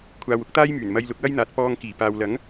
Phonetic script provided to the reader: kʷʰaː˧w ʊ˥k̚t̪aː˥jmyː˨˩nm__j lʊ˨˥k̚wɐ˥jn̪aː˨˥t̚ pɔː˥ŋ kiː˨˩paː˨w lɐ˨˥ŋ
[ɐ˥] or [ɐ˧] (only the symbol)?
ɐ˧